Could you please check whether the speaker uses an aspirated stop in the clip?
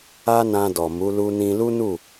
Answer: no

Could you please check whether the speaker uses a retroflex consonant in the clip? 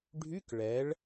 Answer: yes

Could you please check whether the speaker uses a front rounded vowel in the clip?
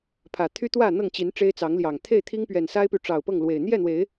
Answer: yes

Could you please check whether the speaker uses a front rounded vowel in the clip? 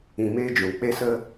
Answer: no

